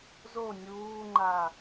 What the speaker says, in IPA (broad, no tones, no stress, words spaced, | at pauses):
zo nʲuːŋ͡ǃa